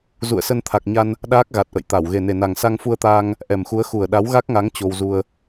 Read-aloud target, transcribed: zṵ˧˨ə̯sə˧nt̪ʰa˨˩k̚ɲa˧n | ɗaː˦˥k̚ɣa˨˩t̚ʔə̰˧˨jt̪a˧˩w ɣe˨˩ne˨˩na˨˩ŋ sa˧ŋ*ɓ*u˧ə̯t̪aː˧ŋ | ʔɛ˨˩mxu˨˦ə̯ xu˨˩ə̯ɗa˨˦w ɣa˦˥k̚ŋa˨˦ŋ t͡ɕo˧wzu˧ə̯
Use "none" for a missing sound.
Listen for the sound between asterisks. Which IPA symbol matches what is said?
f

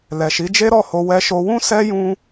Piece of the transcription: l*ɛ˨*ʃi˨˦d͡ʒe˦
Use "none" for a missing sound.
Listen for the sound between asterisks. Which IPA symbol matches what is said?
ɛ˨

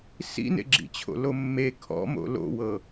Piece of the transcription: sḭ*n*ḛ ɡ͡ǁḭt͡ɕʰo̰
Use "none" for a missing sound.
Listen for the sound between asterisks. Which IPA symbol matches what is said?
n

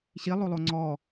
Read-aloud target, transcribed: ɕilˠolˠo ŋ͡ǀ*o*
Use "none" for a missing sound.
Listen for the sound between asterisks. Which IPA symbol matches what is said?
ɔ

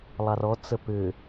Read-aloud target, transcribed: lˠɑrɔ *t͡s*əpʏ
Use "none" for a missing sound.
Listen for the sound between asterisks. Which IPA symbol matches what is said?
t͡s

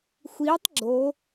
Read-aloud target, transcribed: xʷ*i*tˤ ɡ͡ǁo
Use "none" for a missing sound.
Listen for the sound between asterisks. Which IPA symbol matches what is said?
i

